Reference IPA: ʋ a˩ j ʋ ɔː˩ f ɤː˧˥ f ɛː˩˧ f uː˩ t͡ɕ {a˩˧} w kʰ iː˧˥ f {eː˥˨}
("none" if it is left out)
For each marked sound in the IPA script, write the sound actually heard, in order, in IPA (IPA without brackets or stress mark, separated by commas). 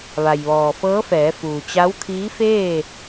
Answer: a˧˥, eː˥˨